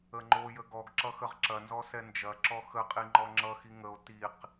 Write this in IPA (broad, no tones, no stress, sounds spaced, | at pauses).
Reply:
ə ŋ͡ǃ o j ə ɡ ɔ ɡ ǁ ʌ x ə ʁ ǁ ɐ n z ɔ s ɛ n d͡ʒ ɐ ǁ ɔ x ə qʼ i ŋ͡ǃ ɔ ŋ͡ǁ ʌ x i ŋ ə o̯ t i q